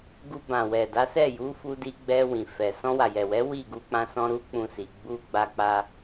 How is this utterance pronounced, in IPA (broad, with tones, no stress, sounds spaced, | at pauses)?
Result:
ɡ u˧ b ã˨ w ɛ˨ d a˨˦ s ɛ˦˨ j u˨˦ f u˧ d i˧ ɡ͡b ɛ˧ w ĩ˨ f ɛ˨ s ɔ̃˧ w a˨ j ɛ˨ w ɛ˨˦ w i˦˨ ɡ u˧ k͡p ã˧ s ɔ̃˧ ɾ u˦ k͡p ũ˧ s i˨ ɡ͡b u˧ ɡ͡b a˧ k͡p a˧